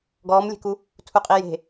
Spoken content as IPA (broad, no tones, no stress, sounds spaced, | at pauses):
ɡ ɔː m lʲ e̤ k u | tʰ u qʼ i j e̤